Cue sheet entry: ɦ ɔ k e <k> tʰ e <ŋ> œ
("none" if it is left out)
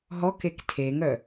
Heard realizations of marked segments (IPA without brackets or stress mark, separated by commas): k, ŋ